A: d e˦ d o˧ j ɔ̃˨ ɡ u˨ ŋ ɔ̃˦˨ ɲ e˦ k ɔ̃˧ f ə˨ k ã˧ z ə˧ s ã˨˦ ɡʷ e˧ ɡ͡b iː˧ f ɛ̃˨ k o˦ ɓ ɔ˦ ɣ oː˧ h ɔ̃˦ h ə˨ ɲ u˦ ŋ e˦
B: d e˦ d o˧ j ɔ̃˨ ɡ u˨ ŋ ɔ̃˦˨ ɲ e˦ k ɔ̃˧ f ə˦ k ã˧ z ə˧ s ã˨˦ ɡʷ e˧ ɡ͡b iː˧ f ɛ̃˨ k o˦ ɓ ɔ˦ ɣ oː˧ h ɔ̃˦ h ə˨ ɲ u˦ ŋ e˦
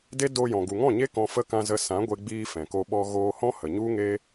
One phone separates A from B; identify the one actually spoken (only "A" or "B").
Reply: B